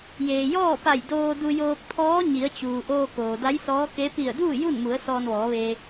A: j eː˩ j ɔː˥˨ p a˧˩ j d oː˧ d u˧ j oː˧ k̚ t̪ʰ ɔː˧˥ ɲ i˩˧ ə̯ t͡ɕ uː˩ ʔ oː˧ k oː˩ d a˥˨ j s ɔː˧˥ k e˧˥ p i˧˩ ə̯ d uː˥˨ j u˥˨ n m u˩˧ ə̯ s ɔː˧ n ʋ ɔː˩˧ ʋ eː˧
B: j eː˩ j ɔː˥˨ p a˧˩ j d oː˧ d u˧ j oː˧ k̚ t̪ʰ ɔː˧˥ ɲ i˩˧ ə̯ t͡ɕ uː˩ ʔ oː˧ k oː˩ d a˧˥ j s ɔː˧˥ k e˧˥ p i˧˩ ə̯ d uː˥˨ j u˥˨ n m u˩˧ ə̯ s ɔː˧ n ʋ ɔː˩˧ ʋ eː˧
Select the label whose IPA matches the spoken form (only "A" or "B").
B